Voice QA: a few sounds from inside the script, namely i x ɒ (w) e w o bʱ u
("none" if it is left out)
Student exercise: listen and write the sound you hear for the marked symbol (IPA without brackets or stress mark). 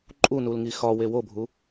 w